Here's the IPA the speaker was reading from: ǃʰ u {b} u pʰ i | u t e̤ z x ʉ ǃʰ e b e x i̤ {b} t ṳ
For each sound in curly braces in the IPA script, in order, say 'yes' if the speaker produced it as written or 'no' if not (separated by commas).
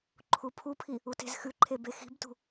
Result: no, yes